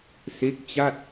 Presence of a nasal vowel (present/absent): absent